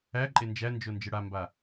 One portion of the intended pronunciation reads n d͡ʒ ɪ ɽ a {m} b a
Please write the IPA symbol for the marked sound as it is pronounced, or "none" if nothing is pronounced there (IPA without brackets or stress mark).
m